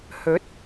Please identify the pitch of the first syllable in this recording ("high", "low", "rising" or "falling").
rising